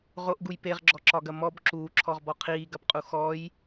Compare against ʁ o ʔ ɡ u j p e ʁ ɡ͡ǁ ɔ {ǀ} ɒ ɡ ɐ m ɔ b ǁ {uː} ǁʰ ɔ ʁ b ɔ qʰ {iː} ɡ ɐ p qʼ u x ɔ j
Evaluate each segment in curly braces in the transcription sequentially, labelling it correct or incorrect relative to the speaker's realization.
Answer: incorrect, correct, correct

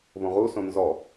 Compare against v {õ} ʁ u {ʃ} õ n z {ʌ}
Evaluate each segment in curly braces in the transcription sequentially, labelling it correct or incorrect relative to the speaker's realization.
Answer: correct, incorrect, incorrect

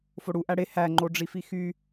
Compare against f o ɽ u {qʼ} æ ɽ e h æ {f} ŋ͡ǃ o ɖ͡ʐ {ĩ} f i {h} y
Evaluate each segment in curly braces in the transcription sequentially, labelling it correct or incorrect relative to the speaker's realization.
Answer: incorrect, incorrect, incorrect, incorrect

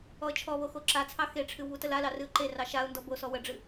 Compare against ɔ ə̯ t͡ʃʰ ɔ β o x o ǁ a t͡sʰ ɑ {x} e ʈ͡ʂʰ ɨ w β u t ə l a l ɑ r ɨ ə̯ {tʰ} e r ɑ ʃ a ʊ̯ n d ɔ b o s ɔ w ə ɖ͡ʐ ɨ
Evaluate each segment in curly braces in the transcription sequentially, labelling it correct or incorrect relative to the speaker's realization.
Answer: correct, incorrect

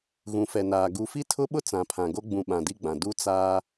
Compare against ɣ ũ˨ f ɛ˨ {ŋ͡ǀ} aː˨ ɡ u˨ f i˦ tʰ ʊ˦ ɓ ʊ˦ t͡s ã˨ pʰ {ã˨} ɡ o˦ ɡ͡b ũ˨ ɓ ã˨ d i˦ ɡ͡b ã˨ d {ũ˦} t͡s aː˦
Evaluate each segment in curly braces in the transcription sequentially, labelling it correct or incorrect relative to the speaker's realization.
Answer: incorrect, correct, incorrect

